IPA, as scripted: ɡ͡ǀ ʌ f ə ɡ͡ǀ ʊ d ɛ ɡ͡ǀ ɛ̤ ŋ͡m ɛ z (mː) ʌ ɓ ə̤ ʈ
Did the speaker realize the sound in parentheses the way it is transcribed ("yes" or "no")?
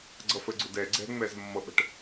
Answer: yes